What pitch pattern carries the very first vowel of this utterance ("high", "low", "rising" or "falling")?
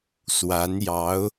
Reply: rising